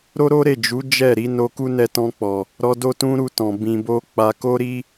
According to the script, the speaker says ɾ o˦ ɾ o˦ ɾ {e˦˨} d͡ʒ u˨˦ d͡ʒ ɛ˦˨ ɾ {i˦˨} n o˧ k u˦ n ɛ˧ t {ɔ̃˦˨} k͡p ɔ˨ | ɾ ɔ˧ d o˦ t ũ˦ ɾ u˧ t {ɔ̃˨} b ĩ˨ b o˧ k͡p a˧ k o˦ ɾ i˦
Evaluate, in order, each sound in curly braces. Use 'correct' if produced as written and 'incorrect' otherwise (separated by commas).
correct, incorrect, incorrect, correct